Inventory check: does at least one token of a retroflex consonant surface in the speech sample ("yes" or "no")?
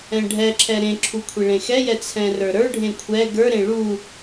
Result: yes